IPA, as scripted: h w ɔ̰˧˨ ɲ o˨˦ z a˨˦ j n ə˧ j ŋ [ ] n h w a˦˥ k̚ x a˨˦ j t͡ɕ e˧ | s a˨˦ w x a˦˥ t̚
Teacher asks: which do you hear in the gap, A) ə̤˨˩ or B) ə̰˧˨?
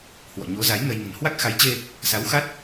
A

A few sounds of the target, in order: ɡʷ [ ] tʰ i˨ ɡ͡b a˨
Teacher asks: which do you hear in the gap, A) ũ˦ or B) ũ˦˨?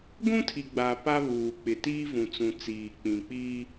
A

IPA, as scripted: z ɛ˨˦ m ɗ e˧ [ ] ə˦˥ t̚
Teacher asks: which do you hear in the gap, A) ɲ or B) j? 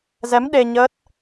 A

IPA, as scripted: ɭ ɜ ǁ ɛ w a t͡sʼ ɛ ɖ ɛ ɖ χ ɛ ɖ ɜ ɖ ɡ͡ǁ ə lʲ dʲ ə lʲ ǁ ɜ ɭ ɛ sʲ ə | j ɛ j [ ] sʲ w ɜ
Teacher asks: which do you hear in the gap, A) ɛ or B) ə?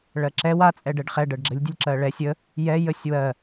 B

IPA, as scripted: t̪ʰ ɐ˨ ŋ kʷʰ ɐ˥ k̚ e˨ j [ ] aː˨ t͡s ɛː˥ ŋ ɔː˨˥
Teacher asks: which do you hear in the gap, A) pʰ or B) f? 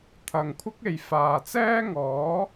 B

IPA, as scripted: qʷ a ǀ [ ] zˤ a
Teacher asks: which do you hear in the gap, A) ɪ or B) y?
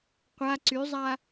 B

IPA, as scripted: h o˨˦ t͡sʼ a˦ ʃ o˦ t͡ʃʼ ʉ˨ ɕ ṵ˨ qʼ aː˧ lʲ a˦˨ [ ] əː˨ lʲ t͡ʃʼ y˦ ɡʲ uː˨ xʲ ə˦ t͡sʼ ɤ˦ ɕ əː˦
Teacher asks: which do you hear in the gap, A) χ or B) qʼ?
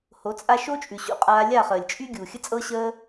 A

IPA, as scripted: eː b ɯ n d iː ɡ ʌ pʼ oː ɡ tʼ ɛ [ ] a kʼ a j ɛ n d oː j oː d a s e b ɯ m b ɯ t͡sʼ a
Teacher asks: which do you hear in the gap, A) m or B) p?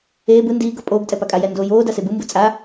B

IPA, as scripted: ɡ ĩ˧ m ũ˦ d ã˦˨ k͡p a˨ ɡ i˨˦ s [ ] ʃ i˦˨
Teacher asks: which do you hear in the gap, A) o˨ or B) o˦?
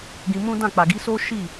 B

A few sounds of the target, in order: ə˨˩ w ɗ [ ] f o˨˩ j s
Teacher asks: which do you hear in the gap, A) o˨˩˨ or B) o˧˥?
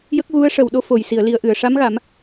B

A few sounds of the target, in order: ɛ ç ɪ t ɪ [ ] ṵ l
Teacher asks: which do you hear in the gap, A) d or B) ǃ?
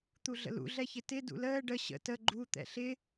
A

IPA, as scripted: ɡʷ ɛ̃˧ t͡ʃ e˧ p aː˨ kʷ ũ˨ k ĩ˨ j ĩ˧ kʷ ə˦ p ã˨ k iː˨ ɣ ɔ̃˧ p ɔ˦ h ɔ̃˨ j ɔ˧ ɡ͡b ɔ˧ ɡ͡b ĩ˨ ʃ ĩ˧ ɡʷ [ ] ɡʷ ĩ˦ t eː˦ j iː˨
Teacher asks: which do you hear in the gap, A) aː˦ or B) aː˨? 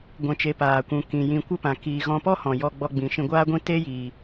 A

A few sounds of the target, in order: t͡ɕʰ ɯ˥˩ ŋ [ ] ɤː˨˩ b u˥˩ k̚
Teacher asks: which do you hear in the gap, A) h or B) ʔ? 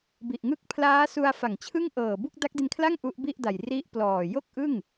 B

